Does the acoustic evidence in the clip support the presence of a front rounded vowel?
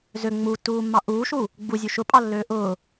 yes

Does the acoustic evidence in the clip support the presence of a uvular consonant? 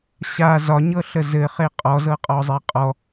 yes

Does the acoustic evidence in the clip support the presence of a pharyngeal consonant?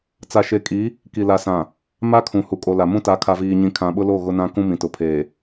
no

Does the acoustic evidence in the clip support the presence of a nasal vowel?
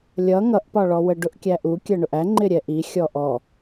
no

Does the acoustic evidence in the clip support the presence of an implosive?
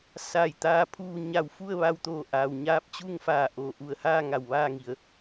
no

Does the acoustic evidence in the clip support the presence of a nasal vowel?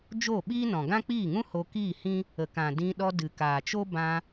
yes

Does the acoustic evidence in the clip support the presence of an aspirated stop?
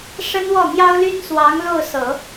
no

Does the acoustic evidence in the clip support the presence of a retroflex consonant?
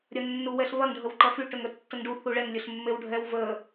yes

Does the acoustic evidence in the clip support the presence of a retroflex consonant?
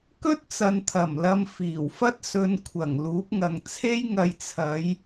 no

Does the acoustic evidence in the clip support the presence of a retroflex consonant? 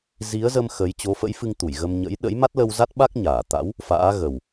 no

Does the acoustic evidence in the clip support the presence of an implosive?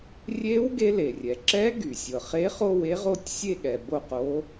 yes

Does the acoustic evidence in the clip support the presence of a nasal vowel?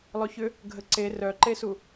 no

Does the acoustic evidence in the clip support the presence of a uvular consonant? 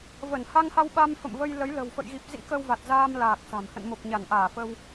no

